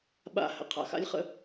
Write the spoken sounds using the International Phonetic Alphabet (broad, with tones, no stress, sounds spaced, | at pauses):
ɓ a̰˦˨ h ə̰˨ qʰ a̰˨ x a̰˦ lʲ χ ə̰˦